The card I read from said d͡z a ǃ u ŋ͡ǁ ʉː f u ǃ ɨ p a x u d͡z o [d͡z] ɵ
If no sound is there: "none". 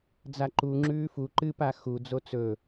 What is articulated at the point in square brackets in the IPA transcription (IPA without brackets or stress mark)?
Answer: t͡s